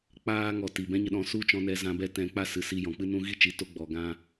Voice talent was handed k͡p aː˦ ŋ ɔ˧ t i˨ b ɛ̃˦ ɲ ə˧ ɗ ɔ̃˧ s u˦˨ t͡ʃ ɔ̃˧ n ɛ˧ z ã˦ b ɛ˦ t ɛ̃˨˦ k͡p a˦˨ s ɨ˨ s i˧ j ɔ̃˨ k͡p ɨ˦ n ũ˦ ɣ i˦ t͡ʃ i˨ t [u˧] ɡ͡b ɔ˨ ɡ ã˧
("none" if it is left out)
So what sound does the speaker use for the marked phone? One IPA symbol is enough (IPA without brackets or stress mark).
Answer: o˧